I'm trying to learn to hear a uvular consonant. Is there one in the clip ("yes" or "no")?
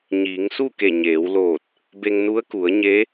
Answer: no